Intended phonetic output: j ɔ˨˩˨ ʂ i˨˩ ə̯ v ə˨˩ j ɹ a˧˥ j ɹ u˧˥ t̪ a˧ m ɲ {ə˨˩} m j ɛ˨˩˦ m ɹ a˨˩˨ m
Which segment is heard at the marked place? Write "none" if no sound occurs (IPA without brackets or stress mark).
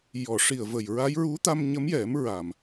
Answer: ə˧˥